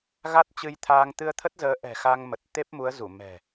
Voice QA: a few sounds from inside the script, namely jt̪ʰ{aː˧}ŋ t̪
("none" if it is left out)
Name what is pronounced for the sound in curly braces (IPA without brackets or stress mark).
aː˧